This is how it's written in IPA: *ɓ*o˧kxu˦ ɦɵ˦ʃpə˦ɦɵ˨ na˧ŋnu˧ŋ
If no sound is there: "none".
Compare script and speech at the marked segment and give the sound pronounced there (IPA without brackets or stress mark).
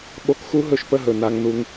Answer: ɓ